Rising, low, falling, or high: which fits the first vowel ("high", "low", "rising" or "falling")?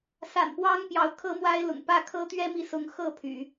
low